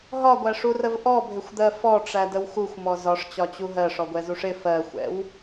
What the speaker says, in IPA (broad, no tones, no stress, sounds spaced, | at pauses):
ɦ ɒ ɡʷ æ ʂ u r ə v ʔ ɔ bʱ ɪ xʷ d̪ ɜ f ɔ ʈ͡ʂ æ d ə w x u xʷ m ɔ z ɒ ʂ t͡ɕ ɒ t͡ɕ u ɦ ɜ ʂ ɔ ɡʷ ɛ z u ʂ ɪ f ɜ xʷ ɛ̰ w